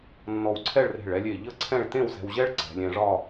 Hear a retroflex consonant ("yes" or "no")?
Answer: yes